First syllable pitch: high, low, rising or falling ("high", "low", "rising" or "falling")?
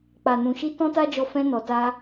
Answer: low